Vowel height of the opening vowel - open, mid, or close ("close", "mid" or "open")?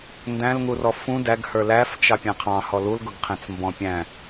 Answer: open